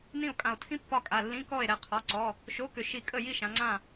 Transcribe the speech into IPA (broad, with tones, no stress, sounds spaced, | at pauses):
n ĩ˥˨ o̯ kʼ ã˧˩ o̯ tʰ ĩ˥ pː ɒ˥˨ kʼ a˩˧˩ lː ĩ˧˥˧ k ɔ˥˨ e̯ ɾ ɛ˧˩ qʰ ɒ˩˧˩ ǀ ɔ˩˧˩ | ʃ o˧˥˧ k ʏ˧˩ ʃ i˧˩ kʼ ə˥˨ j i˥˨ ʃ ã˩˧ ŋ͡ǀ ã˧˩